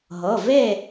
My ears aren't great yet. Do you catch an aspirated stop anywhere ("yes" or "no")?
no